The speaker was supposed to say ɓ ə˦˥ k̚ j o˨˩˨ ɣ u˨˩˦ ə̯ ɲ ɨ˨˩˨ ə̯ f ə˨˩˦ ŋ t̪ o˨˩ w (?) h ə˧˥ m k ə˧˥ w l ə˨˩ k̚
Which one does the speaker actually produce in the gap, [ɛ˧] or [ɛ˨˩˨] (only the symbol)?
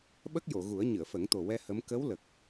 ɛ˧